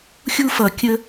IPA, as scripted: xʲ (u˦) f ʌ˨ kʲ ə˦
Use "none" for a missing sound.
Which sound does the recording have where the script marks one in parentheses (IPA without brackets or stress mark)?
u˦